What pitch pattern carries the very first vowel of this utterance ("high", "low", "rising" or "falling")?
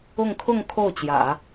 falling